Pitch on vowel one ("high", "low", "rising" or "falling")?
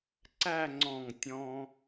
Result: falling